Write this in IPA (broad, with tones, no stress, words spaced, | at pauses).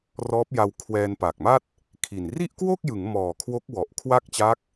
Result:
rɔː˦˥p̚ja˧w kʰwɛː˧n paː˨˩k̚ma˥˩t̚ | kʰi˨˩n ri˥˩ʔkwo˥˩k̚jɯ˩˦ŋ mɔː˨˩kʰwo˦˥k̚ wɔ˨˩ʔkʰwa˥˩k̚t͡ɕa˦˥k̚